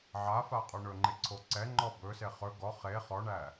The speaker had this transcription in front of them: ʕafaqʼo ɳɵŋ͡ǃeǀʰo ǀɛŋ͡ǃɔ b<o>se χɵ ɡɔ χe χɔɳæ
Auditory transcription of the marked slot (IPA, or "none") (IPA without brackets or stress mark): ɵ